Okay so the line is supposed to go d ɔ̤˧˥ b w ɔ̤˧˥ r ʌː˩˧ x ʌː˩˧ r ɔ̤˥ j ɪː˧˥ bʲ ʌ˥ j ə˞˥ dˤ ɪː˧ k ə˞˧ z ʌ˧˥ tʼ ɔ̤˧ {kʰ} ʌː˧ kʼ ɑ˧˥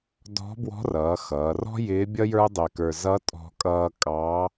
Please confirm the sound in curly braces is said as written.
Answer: no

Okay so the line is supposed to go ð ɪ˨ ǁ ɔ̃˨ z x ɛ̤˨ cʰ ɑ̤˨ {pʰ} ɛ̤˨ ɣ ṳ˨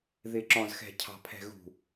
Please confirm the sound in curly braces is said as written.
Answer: yes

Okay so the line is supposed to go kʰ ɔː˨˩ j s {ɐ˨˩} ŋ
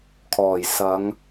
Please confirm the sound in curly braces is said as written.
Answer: no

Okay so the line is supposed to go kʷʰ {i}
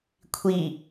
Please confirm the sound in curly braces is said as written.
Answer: yes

